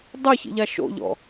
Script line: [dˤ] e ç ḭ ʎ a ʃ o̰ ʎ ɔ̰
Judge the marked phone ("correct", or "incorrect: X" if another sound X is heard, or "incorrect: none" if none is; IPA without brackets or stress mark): correct